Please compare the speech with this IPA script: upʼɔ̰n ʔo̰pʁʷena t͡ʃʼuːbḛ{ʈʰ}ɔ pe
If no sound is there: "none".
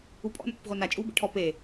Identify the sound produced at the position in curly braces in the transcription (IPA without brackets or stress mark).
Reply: ʈʰ